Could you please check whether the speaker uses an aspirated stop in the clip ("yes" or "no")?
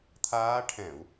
yes